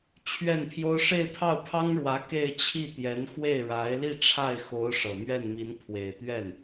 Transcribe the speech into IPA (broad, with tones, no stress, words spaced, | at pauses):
t͡ɕʰɥɛ˥˩npʰjo˥ʊ̯ ʂe˥˧ɪ̯pʰɑ˥˩ʊ̯pʰɑ˥ŋɻwä˧˥ ke˥˧ɪ̯t͡ɕʰi˥˩ t̪jɛ˧˥nxwe˥˩ɪ̯ɻa˧˥ɪ̯li˥˧ ʈ͡ʂʰa˥˩ɪ̯xo˧˥ʊ̯ ʂɤ˨˩ mɥɛ˥˩nmi˧˥n pʰwe˨˩ɪ̯t̪ɥɛ˥˩n